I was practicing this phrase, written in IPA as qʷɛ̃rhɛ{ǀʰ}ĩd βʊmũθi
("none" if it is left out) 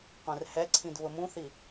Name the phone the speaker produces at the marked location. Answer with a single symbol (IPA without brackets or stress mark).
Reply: ǀʰ